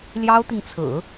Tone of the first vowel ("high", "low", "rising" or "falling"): high